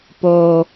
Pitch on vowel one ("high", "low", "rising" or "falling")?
low